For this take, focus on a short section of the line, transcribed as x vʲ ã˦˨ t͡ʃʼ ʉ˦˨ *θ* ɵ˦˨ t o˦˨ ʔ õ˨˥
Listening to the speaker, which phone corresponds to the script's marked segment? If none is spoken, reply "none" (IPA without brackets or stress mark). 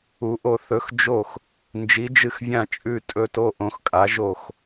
tʼ